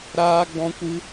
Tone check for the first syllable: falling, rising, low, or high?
high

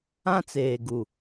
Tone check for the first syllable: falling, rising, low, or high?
high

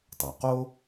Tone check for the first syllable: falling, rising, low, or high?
low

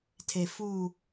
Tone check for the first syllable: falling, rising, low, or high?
low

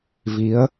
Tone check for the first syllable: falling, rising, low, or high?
rising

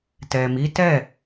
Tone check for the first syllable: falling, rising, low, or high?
low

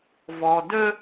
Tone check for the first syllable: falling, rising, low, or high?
low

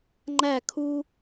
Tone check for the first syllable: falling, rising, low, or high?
falling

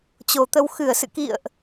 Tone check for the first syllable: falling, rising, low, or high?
low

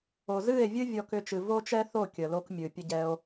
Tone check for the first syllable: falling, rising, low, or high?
low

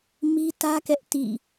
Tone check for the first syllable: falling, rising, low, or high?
high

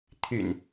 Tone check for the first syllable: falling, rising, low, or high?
low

